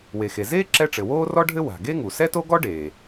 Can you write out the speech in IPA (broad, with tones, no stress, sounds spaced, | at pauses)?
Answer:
w e˩ x e˩ z eː˥ ǁ ɛ˥ ʈ͡ʂ ɘ˩ w oː˥ r ɔ˥ ɖʱ ɘ˥ w a̤˩ ɡ e˥ ŋ u˩ s ɛ˥ t o˥ ɡ ɔ˥ ɖ eː˩